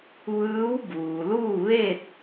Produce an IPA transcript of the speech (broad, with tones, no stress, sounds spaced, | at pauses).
ʋ ɯː˧˥ w b uː˩ l uː˥˨ ʋ e˥˨ t̚